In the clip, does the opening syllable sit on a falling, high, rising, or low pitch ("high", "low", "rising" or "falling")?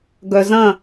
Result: low